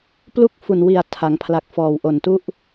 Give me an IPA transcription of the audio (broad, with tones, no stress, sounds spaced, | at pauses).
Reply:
p l u˥˩ k̚ f u˨˩ n w i˨˩ a̯ tʰ a˩˦ ŋ pʰ l a˨˩ k̚ f ɔː˨˩ w ʔ o˨˩ n t u˥˩ ʔ